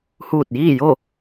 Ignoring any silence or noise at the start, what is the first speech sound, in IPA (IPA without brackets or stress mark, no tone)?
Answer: h